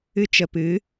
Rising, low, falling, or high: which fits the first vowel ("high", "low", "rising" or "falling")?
high